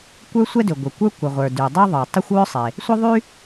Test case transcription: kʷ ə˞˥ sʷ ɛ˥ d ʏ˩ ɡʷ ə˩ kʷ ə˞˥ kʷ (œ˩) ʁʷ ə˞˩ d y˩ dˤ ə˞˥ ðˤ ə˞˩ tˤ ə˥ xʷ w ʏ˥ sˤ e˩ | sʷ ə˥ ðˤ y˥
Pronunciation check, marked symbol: incorrect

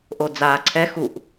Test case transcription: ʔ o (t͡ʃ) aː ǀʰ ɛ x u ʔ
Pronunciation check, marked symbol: incorrect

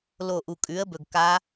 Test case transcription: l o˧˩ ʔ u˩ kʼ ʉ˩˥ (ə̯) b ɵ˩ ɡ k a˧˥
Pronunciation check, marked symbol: correct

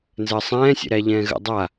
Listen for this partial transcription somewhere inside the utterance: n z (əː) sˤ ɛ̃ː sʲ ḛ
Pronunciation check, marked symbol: correct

